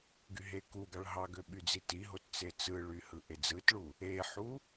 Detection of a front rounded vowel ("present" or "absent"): present